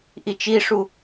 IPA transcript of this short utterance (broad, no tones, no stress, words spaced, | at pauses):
ʔit͡ʃiʂu